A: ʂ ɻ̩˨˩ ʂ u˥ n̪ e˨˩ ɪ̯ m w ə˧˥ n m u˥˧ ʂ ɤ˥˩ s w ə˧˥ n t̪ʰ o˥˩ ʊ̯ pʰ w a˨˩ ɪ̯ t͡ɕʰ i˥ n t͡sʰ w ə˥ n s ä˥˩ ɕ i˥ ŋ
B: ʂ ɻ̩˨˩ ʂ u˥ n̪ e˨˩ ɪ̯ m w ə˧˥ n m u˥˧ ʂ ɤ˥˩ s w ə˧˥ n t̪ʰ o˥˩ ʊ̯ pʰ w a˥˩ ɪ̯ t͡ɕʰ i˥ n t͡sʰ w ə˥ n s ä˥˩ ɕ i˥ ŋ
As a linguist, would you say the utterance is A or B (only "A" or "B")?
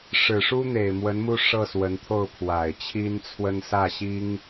A